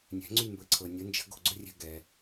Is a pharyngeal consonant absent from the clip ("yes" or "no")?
yes